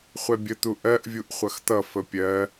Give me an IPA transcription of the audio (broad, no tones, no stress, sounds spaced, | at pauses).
χʷ ɛ bʲ ə t̪ u ʔ ɜ ʔ vʲ u ʔ χʷ ʌ x t̪ ʌ f ə pʲ ɜ